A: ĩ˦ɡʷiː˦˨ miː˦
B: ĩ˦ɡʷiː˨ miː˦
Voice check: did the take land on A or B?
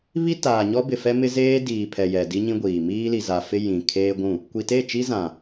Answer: B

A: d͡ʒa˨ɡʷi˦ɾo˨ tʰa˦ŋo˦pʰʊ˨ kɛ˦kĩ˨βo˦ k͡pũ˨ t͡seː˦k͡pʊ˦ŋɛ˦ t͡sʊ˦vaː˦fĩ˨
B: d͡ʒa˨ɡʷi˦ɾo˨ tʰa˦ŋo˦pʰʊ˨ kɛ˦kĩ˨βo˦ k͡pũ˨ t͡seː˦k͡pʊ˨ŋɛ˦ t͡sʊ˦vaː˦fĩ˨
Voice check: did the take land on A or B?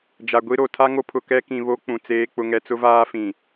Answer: A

